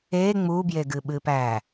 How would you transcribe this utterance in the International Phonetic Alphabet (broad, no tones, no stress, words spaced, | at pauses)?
e ŋ͡mubjeɡɨɓɨ pæ